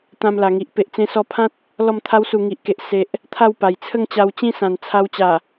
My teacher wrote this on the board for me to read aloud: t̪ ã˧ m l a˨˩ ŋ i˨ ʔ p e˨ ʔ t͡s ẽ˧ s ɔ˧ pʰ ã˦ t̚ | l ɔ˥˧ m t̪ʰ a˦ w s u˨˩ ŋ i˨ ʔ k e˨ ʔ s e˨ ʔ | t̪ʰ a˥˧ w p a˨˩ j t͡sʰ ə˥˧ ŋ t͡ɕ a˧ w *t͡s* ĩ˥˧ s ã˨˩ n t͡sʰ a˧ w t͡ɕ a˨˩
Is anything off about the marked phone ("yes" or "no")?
yes